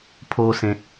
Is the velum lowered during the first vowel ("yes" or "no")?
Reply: no